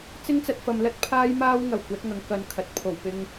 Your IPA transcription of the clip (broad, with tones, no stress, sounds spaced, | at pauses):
t͡s ɪ˥ ŋ t͡s ɐ˧ t̚ f ɐ˨ m l ɐ˥ t̚ pʰ aː˥ j m aː˥ w ŋ ɐ˨˩ w kʷ ɐ˨˥ t̚ ŋ ɐ˨ ŋ k ɐ˨ n kʰ ɐ˨ t̚ pʰ o˨˩ w p ɪ˧ ŋ